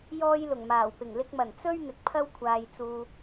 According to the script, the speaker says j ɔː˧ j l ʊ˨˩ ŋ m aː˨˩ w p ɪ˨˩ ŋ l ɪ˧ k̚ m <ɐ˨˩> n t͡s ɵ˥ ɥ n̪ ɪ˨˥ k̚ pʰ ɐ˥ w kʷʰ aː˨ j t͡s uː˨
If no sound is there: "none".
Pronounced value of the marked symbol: ɐ˨˩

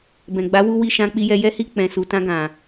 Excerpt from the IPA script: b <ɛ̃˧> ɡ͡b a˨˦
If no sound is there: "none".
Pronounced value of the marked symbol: ɛ̃˨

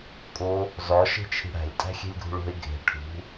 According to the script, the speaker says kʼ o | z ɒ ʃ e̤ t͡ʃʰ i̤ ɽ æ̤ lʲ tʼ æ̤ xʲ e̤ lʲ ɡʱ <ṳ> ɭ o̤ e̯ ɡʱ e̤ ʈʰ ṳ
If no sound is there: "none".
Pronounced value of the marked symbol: ṳ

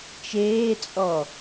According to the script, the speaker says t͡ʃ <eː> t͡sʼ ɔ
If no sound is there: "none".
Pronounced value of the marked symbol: eː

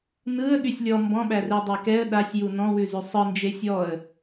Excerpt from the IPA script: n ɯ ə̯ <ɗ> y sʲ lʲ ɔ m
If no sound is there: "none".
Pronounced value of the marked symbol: ɠ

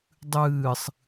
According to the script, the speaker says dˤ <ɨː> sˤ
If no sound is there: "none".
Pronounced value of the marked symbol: ɨː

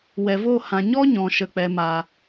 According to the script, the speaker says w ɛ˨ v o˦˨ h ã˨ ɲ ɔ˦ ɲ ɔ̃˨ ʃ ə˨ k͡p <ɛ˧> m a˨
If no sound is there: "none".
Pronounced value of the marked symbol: ɛ˨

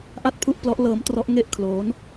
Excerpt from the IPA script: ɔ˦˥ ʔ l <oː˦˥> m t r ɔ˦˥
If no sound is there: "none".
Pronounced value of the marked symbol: ɤː˦˥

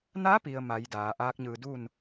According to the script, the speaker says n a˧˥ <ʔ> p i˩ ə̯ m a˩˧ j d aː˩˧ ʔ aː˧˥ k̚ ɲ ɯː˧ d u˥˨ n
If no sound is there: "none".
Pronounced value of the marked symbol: none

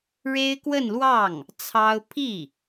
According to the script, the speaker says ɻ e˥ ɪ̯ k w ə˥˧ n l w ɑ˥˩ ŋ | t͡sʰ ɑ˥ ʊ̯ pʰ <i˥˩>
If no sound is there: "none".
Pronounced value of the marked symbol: i˥˩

